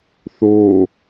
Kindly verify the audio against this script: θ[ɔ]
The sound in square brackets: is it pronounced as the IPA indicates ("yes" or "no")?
no